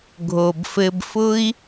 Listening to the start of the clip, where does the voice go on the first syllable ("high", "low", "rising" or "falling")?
low